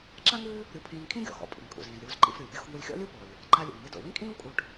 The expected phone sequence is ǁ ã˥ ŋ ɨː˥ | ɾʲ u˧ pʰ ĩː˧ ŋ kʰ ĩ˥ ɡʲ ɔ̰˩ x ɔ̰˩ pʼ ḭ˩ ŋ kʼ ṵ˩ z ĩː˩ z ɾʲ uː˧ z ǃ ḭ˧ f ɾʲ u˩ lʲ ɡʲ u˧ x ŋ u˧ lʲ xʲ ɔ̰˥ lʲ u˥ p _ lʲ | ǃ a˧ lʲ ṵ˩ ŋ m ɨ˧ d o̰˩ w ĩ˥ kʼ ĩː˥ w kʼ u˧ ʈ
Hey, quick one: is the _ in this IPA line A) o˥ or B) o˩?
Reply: B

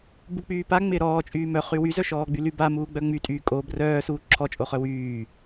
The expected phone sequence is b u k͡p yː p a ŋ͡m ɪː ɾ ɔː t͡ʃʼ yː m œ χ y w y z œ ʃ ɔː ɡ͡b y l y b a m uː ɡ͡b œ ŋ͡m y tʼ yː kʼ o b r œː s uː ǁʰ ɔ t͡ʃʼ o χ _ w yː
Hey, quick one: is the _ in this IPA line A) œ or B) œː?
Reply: A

